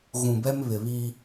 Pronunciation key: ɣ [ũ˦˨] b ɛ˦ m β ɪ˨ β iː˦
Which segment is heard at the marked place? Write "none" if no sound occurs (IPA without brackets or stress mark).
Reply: ũ˨